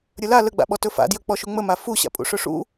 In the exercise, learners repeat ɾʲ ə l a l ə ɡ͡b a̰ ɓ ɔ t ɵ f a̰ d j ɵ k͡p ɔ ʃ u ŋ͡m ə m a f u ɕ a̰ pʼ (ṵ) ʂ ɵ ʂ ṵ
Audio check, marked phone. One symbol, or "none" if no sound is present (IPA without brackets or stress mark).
ṵ